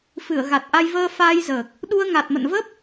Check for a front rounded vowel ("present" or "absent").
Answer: absent